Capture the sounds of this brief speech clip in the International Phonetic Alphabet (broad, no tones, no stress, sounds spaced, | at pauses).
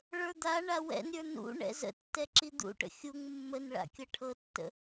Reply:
ɭ ə˞ d̪ a ɳ a w ɛ̰ n ɾʲ ə˞ n ṵ ɳ ɛ̰ z ə̰ tː ɛ ǁ i d̪ ṵ ʈ ə̰ xʲ u ŋ mː ə n ɭ a̰ kʲ ɤ ʈʰ ɤ tː ə̰